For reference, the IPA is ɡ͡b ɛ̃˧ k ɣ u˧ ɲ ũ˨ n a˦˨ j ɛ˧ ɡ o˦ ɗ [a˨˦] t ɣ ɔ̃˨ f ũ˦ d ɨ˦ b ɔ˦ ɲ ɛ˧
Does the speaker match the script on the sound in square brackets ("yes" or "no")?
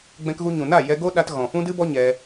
no